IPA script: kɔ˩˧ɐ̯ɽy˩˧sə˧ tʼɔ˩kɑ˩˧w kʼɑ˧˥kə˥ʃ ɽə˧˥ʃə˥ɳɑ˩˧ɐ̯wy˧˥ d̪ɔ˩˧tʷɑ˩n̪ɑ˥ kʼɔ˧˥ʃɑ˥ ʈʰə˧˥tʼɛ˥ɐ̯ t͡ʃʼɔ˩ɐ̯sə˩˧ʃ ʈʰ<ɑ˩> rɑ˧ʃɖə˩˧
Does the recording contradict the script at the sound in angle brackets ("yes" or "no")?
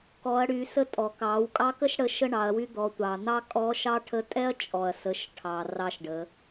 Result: no